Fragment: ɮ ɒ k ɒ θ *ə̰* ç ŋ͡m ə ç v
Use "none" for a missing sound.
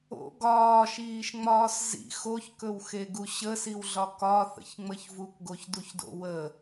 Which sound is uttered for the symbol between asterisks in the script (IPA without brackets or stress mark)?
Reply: ə̰